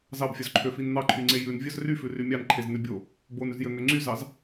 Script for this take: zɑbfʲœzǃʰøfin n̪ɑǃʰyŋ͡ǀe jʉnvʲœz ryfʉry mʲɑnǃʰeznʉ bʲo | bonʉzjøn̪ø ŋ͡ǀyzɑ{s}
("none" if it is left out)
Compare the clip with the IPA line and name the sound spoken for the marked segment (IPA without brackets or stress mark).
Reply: z